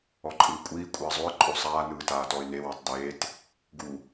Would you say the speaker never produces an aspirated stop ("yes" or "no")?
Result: yes